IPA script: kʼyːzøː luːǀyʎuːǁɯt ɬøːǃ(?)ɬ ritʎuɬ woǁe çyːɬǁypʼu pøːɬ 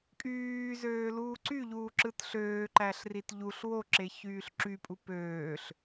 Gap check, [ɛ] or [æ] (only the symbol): æ